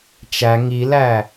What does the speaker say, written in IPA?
t͡ʃ æ ŋ i l æ

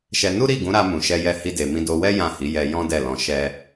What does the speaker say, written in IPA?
ʃ ɛ˧ n u˦ ɾ i˦˨ ɡ ũ˨˦ ɾ a˧ m ũ˨ ʃ ɛ˧ j ɛ˧ h i˦ d e˧ m ĩ˦ d o˧ w ɛ˦ j ã˦˨ h i˨˦ j ɛ˧ j ɔ̃˦ d ɛ˦˨ l ɔ̃˧ ʃ ɛ˧

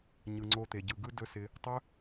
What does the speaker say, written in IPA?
ɲ ɯ˨ ŋ͡ǀ o˧ t̪ e˨ ɟ ɯ˨ ɡ ɯ˦ d ɵ˦ s ɪ˧ | tˤ ɵ˦

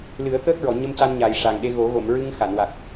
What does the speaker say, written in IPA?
l ɨ˨˩˦ ə̯ t̪ əː˦˥ k̚ ɹ ɔ˨˩˨ ɲ ə˧ m c a˧ n ɲ a˨˩ j ʂ a˨˩ ŋ ɗ e˧ ɣ o˨˩˦ ɣ o˨˩˨ m ɹ ɨ˧ ŋ x a˨˩˨ n w a˨˩ k̚

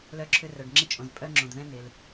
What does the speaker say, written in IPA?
l œ˧ ǁʰ ʏ˧ r œ˩ ɖ ŋ͡ǁ ɪ˧ t͡ʃʼ õ˩ z pʼ œ˧ ŋ͡ǁ õ˩ d ð ɛ̃˧ n̪ ɪ˩ l

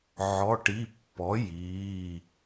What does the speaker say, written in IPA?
ʕ ɔ˩˧˩ ʈ i˩˧˩ pː ɔ˩˥ j iː˩˧˩

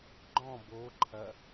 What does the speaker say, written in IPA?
ɡ͡ǃ ɔ̃ b o ǃʰ ɐ

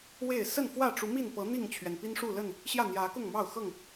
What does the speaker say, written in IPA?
w e˥˨ ɪ̯ s ə˥˨ n f w ä˥˨ ʈ͡ʂ u˨˦ m i˥˨ n p ɤ˨˦ n̪ i˥˨ ŋ t͡ɕʰ ɥ ɛ˩ n p i˦ n ʂ u˥˨ l ə˥˨ n | ɕ j ä˥˨ n̪ j ä˨˦ k ʊ˥˨ ŋ m ɑ˥˨ ʊ̯ x ɤ˥˨ ŋ

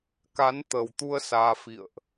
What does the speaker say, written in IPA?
k a˨˦ n t̪ ə˨˩ w t̪ u˧ ə̯ s aː˧ f ḭ˧˨ ə̯ ʔ

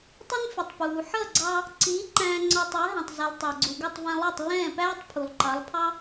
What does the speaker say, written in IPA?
tˤ ɪ˥ n f ɪ˩ tˤ p uː˩ ħ ʌ˥˩ ɡ͡ǀ ɑ˧ | ǀ iː˩˥ ǃ æ̃ː˧ ŋ͡ǀ ɒ˧ tˤ əː˩˥ ɦ ɛ̃˩ tˤ z i˩ lˠ tˤ æ˩ ɡ͡ǀ u˩ ɡ əː˥˩ tˤ v ɛ̃˧ lˠ ɜ˥˩ tˤ lː ɛ̃ː˥˩ p æː˥ tˤ pʰ u˩ lˠ ǃ ɑ˩˥ lˠ pʰ ɑ˥

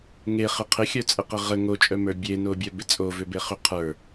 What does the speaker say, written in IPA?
ŋ e χ ɪ qʰ ɪ xʲ œ t͡sʼ ə q ə ʁ ə ŋ o t͡ʃʼ œ m ə˞ bʲ e n o bʲ œ b ɪ t͡sʼ o v ʏ b e χ ʏ qʰ ə˞

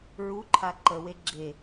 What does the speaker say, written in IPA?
ɹ u ǃʰ a ǃ ə w e ɡ͡ǁ e

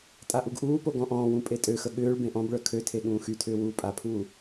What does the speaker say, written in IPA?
tʼ a ʔ u ɡ ʔ uː p o ɡ ɔ̃ ʔ ɔ̃ː w ũ pʼ e tʼ ø x ə ɠ ʏː ɭ b ẽ ʔ ɔ̃ b ɭ œ kʰ ø tʰ e ɠ ũː x y tʰ ʏː w uː pʼ a pʰ uː

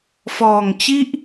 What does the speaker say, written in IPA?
f ɔː˨˩ ŋ t͡ɕ i˥˩ ʔ

